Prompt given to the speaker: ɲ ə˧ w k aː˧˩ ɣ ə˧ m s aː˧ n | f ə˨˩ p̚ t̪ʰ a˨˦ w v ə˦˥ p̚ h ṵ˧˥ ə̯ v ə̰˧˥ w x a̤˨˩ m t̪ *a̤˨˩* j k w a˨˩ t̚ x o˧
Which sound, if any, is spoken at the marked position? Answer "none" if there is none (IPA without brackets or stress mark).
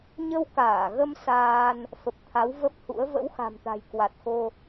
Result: a̤˨˩